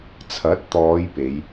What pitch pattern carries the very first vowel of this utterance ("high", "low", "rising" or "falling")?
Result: rising